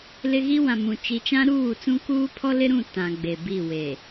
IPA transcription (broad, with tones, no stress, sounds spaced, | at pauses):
l ɪ˦ ɣ i˦ w ã˨ m ũ˨ t͡ʃ i˨ t͡ʃ ã˦ ɾ uː˦˨ t͡s ũ˦ k uː˦ pʰ ɔ˦ l ɪ˦ ɾ ũ˦˨ t ã˨ ɡ͡b e˨ b i˦˨ w e˨